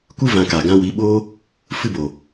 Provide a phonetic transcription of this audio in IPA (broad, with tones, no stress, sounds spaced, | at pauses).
kʷ ɨ˦ v ã˧ k a˨ ɡ ã˧ w i˨˦ ɓ oː˦ | f ɨ˦ b o˨